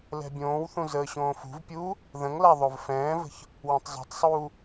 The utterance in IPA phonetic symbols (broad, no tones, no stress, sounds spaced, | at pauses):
l ɛ̤ bʲ õː w θ ũ z əː ɕ õː f ṳ v pʲ uː | ð ə̃ ŋ l a ðˤ o v f ɛ̃ː v ə̤ ç | w ə̃ tˤ zˤ ɛ̤ tˤ sˤ uː